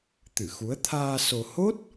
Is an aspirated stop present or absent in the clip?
present